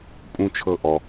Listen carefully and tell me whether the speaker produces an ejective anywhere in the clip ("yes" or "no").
yes